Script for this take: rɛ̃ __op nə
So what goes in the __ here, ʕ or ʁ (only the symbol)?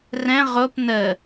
ʁ